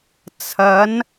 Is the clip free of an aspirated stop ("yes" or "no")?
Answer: no